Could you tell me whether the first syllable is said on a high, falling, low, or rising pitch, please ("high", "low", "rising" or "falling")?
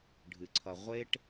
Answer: low